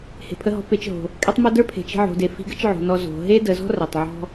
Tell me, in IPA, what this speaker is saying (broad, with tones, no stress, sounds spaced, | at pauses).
h e̤˩ pʰ ə˧ ɦ ɔ̤˧˥ p e˩˧ t͡ʃ ɦ o̤˩ | kʼ ɛ˥ tˤ m o˥ d ə˞˥ pʰ e̤˩˧ t͡ʃ i̤˧ ʕ o̤˩˧ d e˩˧ f i̤˧˥ ɡ ə˥ t͡ʃ ʕ o̤˩˧ n ɔ˧ z o̤˩˧ ɦ e˥ d ə˩˧ z ɔ̤˥ r ɛ˩ tˤ ʕ ɔ̤˥